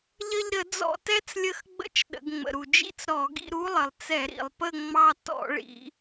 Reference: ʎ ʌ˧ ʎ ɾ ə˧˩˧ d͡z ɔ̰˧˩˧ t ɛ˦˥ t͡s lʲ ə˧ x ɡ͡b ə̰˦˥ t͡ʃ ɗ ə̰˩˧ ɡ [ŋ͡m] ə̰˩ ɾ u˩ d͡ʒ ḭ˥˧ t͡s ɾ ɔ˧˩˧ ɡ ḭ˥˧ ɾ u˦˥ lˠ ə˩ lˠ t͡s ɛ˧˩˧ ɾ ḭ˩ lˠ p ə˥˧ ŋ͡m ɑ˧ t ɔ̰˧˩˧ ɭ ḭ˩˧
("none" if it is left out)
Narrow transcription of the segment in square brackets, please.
ŋ͡m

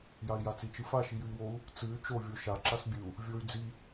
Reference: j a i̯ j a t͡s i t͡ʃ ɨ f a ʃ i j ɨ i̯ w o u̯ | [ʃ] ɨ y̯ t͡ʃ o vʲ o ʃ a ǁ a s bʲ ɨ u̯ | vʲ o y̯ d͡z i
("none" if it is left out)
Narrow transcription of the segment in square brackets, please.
t͡s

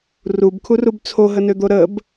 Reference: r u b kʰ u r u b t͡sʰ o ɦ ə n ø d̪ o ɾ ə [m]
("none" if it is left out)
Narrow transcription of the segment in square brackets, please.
b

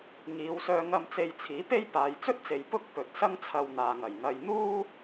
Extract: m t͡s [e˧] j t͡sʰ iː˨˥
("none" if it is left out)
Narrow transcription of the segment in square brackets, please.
e˧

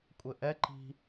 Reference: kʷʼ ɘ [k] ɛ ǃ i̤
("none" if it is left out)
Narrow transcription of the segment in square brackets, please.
ʔ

